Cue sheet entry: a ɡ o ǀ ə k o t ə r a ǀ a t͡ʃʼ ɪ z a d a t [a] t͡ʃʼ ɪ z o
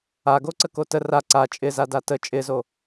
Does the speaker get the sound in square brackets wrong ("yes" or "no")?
yes